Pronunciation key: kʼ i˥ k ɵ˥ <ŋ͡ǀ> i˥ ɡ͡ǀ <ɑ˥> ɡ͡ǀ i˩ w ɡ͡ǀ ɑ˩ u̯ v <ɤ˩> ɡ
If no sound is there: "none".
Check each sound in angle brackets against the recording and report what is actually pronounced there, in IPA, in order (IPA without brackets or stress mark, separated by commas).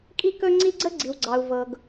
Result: ŋ͡ǀ, ə˥, ɤ˩